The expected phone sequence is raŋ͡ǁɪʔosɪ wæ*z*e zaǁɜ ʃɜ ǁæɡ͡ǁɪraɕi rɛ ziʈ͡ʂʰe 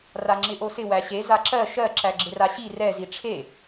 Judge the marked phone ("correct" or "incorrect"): incorrect